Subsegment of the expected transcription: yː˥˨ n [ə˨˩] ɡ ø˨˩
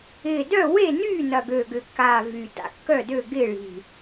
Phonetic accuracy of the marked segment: incorrect: ɐ˨˩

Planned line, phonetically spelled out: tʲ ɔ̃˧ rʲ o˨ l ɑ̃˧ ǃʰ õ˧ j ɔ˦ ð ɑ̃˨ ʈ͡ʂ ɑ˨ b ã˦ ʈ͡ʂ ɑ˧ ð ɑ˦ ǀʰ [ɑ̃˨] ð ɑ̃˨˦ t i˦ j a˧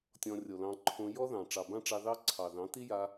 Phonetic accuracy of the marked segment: incorrect: ɑ˨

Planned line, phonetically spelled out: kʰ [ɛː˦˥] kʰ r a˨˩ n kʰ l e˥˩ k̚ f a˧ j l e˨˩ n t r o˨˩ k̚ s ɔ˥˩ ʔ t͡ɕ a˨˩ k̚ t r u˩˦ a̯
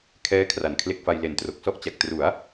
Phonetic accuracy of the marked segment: correct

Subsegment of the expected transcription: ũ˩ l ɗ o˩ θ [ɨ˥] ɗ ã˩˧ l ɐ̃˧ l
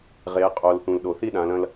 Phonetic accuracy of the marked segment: incorrect: i˥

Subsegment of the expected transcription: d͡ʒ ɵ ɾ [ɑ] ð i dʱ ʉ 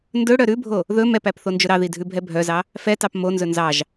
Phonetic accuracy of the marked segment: correct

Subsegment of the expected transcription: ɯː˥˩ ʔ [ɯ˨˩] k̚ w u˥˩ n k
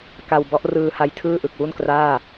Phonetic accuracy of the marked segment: correct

